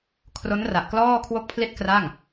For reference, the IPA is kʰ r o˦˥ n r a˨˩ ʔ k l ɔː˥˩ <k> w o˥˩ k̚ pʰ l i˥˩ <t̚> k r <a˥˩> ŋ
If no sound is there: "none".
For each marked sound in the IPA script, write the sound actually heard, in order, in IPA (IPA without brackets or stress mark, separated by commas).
kʰ, t̚, a˥˩